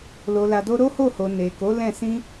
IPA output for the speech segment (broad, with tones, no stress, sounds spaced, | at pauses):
l o˨ l a˨ d o˧ ɾ o˦ h o˦˨ h o˨ n e˨ k o˨˦ l ɛ̃˦˨ s ĩ˧